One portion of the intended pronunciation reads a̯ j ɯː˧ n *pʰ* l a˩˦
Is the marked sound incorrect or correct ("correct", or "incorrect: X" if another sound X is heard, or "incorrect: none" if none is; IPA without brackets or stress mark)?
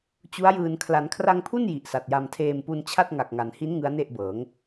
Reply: incorrect: kʰ